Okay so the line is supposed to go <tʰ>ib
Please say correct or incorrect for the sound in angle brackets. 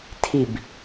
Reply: correct